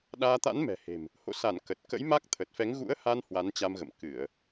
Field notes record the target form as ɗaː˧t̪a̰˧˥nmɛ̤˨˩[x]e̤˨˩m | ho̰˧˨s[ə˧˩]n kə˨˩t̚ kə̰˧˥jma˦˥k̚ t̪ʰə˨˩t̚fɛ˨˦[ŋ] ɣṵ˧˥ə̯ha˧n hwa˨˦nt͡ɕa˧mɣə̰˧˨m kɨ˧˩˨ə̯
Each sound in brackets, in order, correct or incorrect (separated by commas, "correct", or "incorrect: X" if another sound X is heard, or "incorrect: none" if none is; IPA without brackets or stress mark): incorrect: h, incorrect: a˧˩, correct